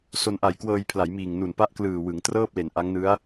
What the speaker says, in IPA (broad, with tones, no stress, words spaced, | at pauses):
so˧nʔa˨˩jkwɤː˧jpʰla˩˦j miː˨˩ŋnu˨˩npa˥˩ʔ klɯː˨˩wɯ˩˦ŋtrɤː˥˩p̚le˩˦n ʔa˦˥ŋnɯ˦˥a̯